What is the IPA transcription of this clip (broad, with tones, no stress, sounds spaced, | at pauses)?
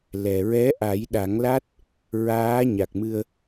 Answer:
l ɛ˨˩ ɹ ɛ˧˥ ʔ a˨˩˦ j ɗ a˨˩˦ ŋ l a˦˥ t̚ | ɹ aː˧˥ ɲ a˨˩ k̚ m ɨ˧ ə̯